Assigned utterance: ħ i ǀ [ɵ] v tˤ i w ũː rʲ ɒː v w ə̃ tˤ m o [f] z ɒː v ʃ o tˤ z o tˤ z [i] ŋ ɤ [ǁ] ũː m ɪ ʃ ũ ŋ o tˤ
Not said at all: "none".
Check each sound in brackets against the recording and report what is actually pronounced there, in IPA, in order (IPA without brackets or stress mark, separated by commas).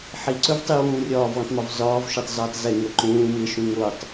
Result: ɵ, v, ɪ, ǃ